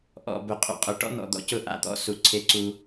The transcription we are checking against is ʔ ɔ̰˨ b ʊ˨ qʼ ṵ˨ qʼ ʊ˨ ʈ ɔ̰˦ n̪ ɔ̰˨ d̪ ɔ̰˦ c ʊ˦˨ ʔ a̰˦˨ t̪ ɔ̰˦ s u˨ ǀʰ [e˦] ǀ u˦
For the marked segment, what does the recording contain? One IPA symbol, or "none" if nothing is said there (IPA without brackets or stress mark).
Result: e˦